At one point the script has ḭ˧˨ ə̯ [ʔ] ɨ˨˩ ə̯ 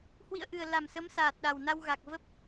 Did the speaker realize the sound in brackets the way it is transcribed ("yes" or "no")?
yes